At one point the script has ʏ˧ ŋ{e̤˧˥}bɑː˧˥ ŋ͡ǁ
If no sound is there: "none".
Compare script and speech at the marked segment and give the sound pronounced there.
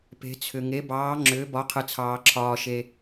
e˧˥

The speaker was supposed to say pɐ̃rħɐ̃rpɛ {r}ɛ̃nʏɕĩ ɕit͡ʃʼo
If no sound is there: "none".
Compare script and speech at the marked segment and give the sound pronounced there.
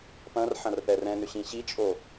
r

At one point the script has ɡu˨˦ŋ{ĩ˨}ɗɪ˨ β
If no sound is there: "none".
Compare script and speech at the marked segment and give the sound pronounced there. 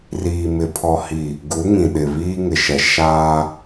ĩ˨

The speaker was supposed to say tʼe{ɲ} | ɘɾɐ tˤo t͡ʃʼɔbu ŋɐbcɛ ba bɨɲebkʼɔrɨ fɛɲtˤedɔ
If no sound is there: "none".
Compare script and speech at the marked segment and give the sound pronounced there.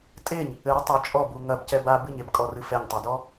ɲ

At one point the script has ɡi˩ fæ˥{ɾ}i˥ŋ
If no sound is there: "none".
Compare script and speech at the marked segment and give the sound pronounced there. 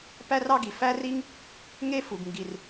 r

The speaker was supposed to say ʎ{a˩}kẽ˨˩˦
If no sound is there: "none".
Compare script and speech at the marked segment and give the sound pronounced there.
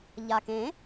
a˩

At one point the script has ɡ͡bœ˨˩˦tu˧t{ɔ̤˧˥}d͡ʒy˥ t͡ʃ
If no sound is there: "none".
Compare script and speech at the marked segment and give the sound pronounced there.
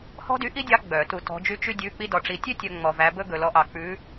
ɔ̤˧˥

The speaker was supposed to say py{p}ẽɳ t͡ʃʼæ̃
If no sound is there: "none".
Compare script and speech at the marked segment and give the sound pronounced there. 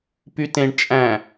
t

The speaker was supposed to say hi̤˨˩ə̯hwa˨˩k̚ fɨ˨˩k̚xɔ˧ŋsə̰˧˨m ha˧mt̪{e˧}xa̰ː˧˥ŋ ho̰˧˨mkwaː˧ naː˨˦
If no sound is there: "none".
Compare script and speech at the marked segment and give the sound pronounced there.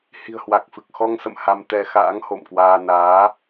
ɛ˧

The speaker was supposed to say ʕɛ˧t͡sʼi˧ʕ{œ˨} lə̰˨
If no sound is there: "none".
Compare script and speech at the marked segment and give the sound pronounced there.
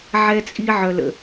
œ˨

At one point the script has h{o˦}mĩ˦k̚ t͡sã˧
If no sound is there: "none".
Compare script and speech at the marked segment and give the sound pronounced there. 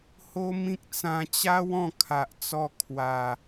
o˦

